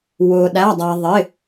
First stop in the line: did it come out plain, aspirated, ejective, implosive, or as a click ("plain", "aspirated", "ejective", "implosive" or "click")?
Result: implosive